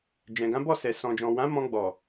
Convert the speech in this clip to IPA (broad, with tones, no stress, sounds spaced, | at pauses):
d͡ʒ ɛ̃˨ ɡ ã˨˦ b ɔ˦˨ s ɛ˨ s ɔ̃˨ d͡ʒ ɔ̃˨ w ã˨˦ m ɔ̃˧ ɡ͡b ɔ˨